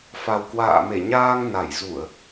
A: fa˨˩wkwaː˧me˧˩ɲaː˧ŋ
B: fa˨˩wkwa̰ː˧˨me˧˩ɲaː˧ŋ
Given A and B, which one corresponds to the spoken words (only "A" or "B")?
B